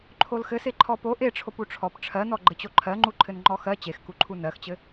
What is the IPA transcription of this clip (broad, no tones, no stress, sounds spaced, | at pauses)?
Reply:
ǃʰ o l x ɘ s e ǃʰ ɔ p o ʔ e ʈ͡ʂʰ o p u ʈ͡ʂʰ ɔ p ʈ͡ʂʰ ɜ n ɔ ɡ͡ǃ ɘ t͡ɕ o ǃʰ ɜ ŋ͡ǃ u ǃʰ ɘ n ŋ͡ǃ ɔ x ɜ t͡ɕ e x k u ǃʰ u n ɜ x t͡ɕ ɘ